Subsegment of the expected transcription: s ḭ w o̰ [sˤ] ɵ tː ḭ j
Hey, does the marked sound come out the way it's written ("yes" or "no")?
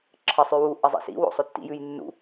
yes